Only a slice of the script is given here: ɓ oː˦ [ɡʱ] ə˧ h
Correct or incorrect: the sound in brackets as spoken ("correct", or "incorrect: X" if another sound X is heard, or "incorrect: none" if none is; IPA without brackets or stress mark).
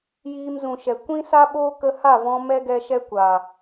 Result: incorrect: k